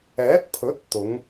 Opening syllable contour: rising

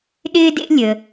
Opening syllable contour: high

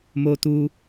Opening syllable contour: high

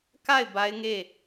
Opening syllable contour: falling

